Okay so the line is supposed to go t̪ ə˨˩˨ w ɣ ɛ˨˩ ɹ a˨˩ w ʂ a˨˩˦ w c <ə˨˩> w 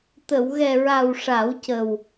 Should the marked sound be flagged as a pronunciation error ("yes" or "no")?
no